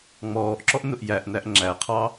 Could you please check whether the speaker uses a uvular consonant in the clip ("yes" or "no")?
yes